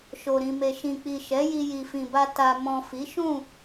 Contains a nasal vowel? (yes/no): yes